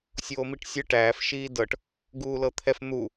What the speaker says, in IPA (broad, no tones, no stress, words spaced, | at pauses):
sʲoːmiʈsʲɯ ʈæːf ʃiːdɤʈ | ɡuːlɤt̪ʰɛf n̪u